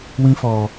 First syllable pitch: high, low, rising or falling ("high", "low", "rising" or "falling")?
high